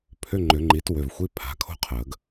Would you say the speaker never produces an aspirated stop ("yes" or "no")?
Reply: no